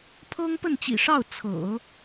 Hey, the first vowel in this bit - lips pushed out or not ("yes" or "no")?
no